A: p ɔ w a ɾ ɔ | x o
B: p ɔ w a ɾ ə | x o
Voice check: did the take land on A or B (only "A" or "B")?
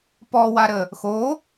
B